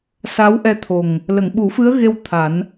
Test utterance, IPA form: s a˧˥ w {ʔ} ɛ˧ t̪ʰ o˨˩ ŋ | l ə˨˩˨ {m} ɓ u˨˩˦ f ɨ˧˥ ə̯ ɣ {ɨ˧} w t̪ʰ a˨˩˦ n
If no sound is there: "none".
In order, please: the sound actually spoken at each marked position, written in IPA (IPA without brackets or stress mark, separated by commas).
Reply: ʔ, ŋ, e˧